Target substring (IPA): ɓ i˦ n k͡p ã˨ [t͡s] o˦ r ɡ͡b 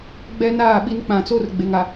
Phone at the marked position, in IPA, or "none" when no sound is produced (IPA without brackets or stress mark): t͡s